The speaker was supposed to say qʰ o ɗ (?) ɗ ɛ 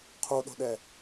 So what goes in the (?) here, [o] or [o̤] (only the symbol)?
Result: o̤